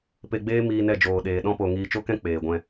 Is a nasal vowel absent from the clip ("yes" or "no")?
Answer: no